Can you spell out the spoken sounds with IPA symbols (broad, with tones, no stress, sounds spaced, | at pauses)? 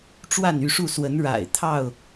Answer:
ʈ͡ʂ w a˥˨ n y˥˨ ʂ u˥˨ s w ə˨˦ n ɻ a̰˨˩ ɪ̯ t̪ʰ ɑ˥˨ ʊ̯